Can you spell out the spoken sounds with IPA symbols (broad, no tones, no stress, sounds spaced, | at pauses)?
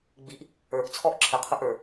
ɡ͡b i ʔ | ə˞ ʔ t͡sʰ ɔː ʔ ǁʰ ə qʰ ʊ ʔ ə˞